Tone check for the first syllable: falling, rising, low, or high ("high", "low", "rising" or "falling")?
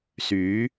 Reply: rising